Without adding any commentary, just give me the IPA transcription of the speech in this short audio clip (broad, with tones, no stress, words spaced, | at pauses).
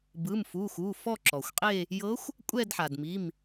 bɯ˩˧˩mfu˩˧˩xu˩˧˩ fɔ˥˧ǁɔ˩xʷqʼe˥˧ | jɤ˧˥xʷ | kʷʼɛ˥˧dħa˩dmi˩˧˩m